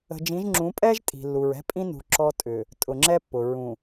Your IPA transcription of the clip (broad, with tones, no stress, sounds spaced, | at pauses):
ə̤˨ d͡ʒ ĩ˨˦ ʒ ŋ͡ǁ ũ˨˦ pʼ ɛ˦ ʒ tʼ i̤˨ lː u˨ ɹ ɛ̤˦ pʼ ĩ˦ n ṳ˨ ǁ ɔ˦ tʼ ʏ˨ | tʼ ʊ˨ ŋ͡ǁ ɛ˦ pː ʊ˨ ɹ ũ˨